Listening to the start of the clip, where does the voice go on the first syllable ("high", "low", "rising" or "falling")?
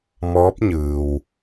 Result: rising